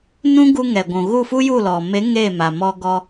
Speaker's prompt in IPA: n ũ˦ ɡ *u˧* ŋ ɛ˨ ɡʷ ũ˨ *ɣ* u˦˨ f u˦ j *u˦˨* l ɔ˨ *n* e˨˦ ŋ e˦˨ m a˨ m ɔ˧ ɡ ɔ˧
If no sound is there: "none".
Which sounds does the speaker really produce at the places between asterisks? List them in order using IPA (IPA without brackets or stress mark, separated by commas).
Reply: u˧, ɣ, u˦˨, m